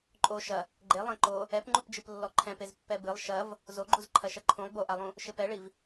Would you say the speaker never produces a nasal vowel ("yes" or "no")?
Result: no